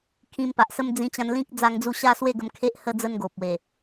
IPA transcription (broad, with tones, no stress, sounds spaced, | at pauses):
kʰ ĩ˧ m p a˨ ʔ s ə˦ m d͡z ĩ˧ t͡ɕ ã˧ n l ĩ˦ k̚ d͡z a˦ ŋ d͡z u˥˧ ɕ a˦ s w e˥˧ ɡ ə˧ m kʰ e˦ ʔ h ə˦ d͡z ə˦ n ɡ o˨ p̚ w e˨˩